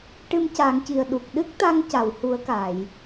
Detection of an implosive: present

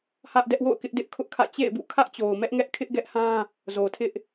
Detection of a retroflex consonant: absent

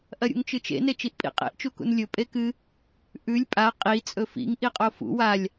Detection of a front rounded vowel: absent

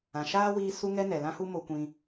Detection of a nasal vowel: present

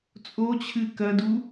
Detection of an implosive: absent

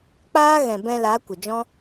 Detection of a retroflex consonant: absent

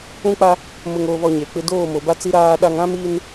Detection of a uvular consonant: absent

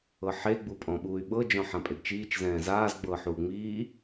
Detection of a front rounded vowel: present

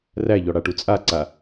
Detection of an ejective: present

